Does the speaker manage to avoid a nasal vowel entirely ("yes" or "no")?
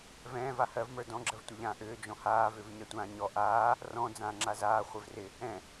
no